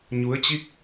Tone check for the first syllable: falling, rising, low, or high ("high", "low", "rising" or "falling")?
rising